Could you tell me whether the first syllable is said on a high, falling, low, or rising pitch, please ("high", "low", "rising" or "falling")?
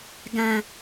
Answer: low